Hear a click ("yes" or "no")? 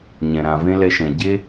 no